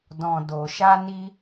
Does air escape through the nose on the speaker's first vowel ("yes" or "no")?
yes